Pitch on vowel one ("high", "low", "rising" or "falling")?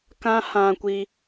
high